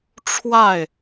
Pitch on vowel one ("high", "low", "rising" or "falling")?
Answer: falling